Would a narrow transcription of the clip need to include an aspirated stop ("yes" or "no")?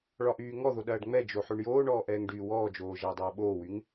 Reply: no